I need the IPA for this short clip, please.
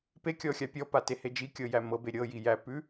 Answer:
p e kʲ ɔ xʲ a pʲ ɔ p a t e h e d͡ʒ i kʲ ɤ j æ m ɤ b e ɾʲ ɤ j i j æ p ʉ

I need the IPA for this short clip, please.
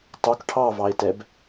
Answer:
tˤ o k ʈʰ ɑ v ɑ e̯ t ɛ b

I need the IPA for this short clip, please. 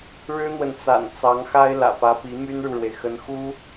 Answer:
ɻ ɻ̩˥ n̪ w ə˨ n t͡s a̰˨˩ n t͡s ɑ˧˥ ŋ x a˥ ɪ̯ l ä̰˨˩ p ä˧˥ p i˧˥ m y˥ n ɻ u˨ ɻ w e˩ ɪ̯ x ə˧˥ n x u˥

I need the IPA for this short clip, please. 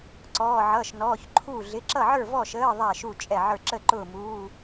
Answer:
ǀ ɔː˧˥˧ ʕ ʌː˧˥˧ ʃ n ɔː˧˥˧ ç ǃʰ uː˥˨ ɮ ɪ˧˥˧ ǁ ʌ˥˨ ʕ ə˞˥˨ v ɔ˥˨ ʃ əː˧˥˧ ðˤ æ˥˨ ʃ u˥˨ t͡ʃʼ ɛ˥˨ ʕ ə˞˥˨ ǁ ə˥˨ ǃ ʊː˥˨ m uː˧˥˧

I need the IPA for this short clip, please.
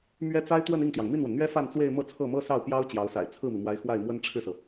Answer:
m ɥ ɛ˥ t͡s a˥ ɪ̯ t̪ w ə˥˧ n i˥˩ ŋ t̪ j ɑ˩ ŋ m i˥˩ n w ə˩ n n̪ ɥ ɛ˥ f a˥˧ n t͡s w e˥˧ ɪ̯ m ɤ˥˧ t͡sʰ ɤ˥˩ m ɤ˥ s ɑ˥˩ ʊ̯ p j ɑ˥ ʊ̯ t͡ɕ j ɑ˧˥ ʊ̯ s a̰˨˩ ɪ̯ t͡sʰ ɹ̩˥˩ m i˩ m w a˧˥ ɪ̯ x w a˥˩ ɪ̯ m w ə˥ n ʈ͡ʂʰ ɻ̩˥˩ s ɤ˩

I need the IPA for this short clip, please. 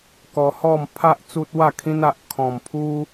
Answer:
k ɔ˧ h ɔ˥˧ m pʰ a˦ ʔ t͡s u˦ t̚ w a˥˧ kʰ ĩ˦ n a˨ ʔ kʰ ɔ̃˨˩ m pʰ u˦

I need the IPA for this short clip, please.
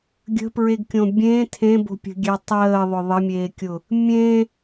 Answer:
ɡʲ ə̤ p ɹ e ɡ kʲ õ bʲ ẽ tʰ ẽ b o̤ pʲ ə̤ ɡʲ ɛ tˤ əː ðˤ ʊ ðˤ ə mʲ eː kʲ ʊ | mʲ ẽ

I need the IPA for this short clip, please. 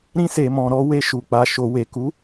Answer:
ɾ ĩ˧ s e˨ m ɔ̃˨ ɾ ɔ˧ w e˧ ʃ u˨ k͡p a˨ ʃ o˨ w e˨ k u˨˦

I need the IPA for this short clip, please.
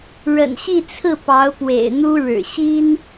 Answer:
ɻ ə̰˨˩ n ɕ i˥˧ t͡sʰ ɹ̩˥˩ p ɑ˧˥ ʊ̯ p w ḛ˨˩ ɪ̯ n̪ u˥ ɻ ɻ̩˨˩ ɕ i˥ n

